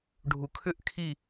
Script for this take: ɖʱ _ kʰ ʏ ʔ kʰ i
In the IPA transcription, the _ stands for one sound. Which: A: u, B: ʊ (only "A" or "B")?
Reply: A